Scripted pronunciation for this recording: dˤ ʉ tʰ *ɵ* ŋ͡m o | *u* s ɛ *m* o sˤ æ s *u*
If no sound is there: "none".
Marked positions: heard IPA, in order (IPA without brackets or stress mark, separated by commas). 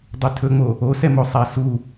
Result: ɵ, o, m, u